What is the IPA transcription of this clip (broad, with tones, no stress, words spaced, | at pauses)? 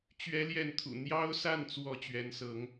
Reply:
t͡ɕɥɛ˥ljɛ˥˩nt̪ʰṵ˨˩ n̪jɑ˥ʊ̯sa˥˩nt͡swɔ˧˥ t͡ɕɥɛ˧˥nsɤ˧˥ŋ